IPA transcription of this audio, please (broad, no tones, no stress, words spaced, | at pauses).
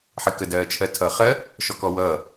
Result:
ħɪkədɜːt͡ʃʰɜ tʰʌːχɜ | ʃɔkɔwʌː